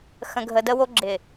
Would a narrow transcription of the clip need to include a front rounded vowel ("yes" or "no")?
no